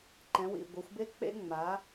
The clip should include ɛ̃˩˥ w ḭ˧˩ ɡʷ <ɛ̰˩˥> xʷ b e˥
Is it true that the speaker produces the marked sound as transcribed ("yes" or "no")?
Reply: no